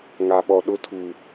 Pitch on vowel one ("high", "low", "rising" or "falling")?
low